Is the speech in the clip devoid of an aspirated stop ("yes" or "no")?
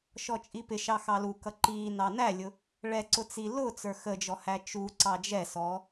yes